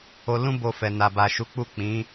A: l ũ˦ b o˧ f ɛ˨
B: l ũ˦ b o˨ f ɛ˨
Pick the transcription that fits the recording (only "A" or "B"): A